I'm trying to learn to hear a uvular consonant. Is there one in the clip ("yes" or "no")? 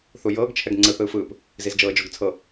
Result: no